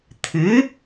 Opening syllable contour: rising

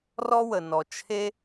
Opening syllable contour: high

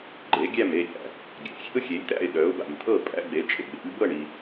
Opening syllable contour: rising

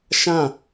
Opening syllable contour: falling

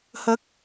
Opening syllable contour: rising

